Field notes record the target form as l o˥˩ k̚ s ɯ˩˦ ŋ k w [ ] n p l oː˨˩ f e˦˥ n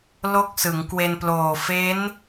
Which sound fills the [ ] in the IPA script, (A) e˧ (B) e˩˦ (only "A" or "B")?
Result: A